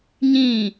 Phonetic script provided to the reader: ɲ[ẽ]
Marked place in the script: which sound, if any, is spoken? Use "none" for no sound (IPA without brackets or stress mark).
ĩ